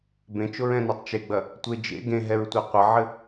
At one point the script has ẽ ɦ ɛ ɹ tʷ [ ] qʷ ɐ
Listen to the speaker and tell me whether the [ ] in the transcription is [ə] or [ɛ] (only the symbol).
ɛ